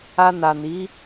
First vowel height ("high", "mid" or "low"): low